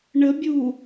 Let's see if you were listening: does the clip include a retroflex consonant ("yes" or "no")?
yes